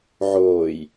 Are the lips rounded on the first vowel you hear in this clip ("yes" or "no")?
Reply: yes